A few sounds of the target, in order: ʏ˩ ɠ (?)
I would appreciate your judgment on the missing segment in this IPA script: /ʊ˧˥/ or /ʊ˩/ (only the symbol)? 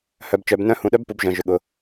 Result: ʊ˩